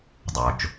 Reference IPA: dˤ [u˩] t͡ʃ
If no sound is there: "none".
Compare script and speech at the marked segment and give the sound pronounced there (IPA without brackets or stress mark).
o˩